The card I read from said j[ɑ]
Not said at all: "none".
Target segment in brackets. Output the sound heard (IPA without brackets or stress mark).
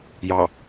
ɑ